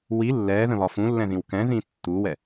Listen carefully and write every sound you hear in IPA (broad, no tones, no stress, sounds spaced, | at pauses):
w i lː ɛː ð ə̃ β ɒ f ũ lː ɛ̃ ð ĩ w k ɛ̃ ð ĩː tː u w ɛ